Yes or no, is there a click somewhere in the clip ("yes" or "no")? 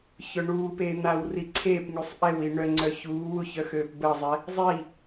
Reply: yes